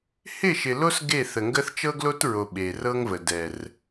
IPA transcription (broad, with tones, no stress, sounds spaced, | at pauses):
h ɪ˦˨ ʃ ɪ˨ l o˦ s ɡ e˦˨ θ ə˨ ŋ ɡ ə˦ θ t͡ʃ ɤ˦ ɡ l o˦ t ɹ o˨ ɓ e˨ r ɤ˦ ŋ v ə˨ d ɛ˨ r